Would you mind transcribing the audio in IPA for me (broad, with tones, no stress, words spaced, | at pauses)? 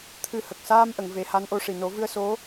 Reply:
t̪ʰɨ˧hə˨˩k̚ saː˧mʔə˨˩˨ŋ ve˨˩˦ha˧˥nʔo˧ʂi˨˩ no˨˩˦vɨ˧ə̯ so˧˥